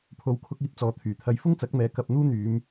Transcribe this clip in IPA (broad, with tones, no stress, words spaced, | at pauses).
pʰo˨˧wkʰʊ˧k̚iː˧p̚ t͡sɔː˨˧t̪ʰyː˨˩t̪ʰɐ˧j fʊ˥ŋt͡sɐ˨˥k̚mɛː˨ kɐ˧p̚ n̪uː˥n̪yː˨˧m